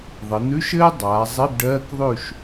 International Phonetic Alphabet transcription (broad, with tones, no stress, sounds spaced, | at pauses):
ðˤ ɘ˩˧ n̪ ʉ˧˥˧ ʃ ɘː˥ dˤ aː˩˧ zˤ i˧˥˧ b ɖ ɜː˧˥˧ k ðˤ ʉ˥˨ ʃ